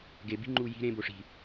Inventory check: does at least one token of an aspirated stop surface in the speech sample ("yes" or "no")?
no